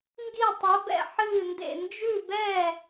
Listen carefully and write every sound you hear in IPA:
ŋ ɡ i˥˩ tˤ ɛ˨˥ b ɛ̰˥˩ ħ ɨː˥˩ n d ḛ˥˩ n d͡ʒ ʉ˥˩ b ɛ˥˩

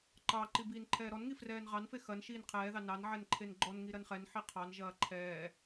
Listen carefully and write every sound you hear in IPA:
ǃ ɑ ǃ i b iː n ǃʰ ɛː ɾ ɔ n ŋ i f r ɛː n ʁ ɑ n f e x ɐ n ʃ iː n qʰ ɛː ð ɑ n ɑ n ʕ ɛ n ǃʰ e n ɡ͡ǃ ɔ n ŋ i ɾ ɐ n χ ɛ n ħ i qʰ ɑ n ʒ ɐː ǃʰ ɛː

